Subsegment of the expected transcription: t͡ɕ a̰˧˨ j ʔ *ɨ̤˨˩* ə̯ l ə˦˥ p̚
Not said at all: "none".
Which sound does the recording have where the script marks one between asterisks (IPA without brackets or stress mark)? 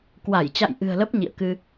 ɨ̤˨˩